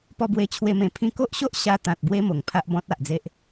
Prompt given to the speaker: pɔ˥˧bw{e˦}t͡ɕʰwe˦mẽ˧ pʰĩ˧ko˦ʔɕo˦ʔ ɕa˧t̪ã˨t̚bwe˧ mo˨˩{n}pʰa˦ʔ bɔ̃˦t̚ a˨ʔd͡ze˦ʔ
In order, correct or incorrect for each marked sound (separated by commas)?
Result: correct, incorrect